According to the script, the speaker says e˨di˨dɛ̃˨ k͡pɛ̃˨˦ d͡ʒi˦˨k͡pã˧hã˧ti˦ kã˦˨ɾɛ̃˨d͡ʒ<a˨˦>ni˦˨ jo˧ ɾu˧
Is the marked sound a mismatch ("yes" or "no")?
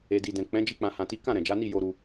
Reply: no